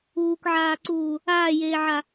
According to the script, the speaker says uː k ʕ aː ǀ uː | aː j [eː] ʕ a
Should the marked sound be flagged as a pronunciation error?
no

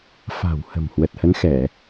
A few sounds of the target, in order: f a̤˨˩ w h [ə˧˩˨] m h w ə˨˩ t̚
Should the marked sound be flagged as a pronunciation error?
yes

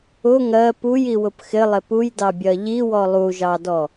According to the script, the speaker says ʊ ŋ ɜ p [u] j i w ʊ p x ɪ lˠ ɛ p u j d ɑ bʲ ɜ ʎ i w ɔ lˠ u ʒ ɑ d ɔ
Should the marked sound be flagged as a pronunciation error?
no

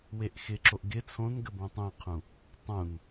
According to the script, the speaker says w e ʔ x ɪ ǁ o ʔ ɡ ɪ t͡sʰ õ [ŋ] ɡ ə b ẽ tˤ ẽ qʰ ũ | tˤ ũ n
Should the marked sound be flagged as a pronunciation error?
yes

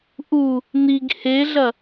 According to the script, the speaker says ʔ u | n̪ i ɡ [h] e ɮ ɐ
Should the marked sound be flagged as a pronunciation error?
no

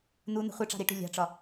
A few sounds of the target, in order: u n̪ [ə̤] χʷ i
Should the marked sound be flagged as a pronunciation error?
no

